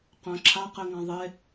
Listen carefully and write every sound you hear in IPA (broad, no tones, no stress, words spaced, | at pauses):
qœ̃ ǁʰa qeŋãðˤe